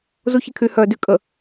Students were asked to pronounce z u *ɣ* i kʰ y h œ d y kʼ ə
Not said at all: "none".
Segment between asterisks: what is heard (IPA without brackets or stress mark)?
ç